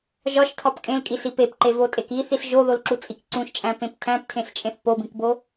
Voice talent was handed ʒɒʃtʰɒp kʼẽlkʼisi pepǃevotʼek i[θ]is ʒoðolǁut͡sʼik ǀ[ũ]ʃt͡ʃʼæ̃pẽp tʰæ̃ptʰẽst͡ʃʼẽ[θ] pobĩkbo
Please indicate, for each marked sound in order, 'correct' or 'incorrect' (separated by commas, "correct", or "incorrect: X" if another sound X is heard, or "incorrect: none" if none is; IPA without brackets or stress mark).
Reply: correct, correct, correct